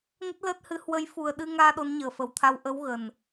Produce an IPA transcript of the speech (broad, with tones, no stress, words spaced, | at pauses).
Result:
ŋə˦˥t̚ləː˦˥t̚hɨ˨˦ hwə˨˦jfu˨˩ə̯ɗɨ˧ŋaː˧ ɗo˨˦nɲəː˨˩fə˨˩wt̪ʰa˧w ʔə˨˦w ɣə˨˩n